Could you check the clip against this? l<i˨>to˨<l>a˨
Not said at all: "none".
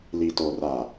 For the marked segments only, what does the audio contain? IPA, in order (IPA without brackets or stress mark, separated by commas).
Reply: i˨, r